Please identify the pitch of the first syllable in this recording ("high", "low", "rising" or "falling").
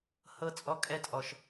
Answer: falling